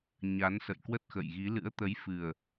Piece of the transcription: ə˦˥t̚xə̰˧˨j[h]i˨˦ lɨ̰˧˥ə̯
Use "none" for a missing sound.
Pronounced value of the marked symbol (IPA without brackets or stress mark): ɣ